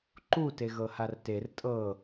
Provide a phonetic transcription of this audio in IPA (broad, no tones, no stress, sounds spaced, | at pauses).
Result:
ǃ u t e ɣ ɤ h a r t e r tʼ ɤ